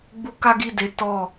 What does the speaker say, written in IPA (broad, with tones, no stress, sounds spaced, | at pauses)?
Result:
ɡ͡b u˦ k a˦ ɡ i˦˨ d e˨˦ t ɔ˦˨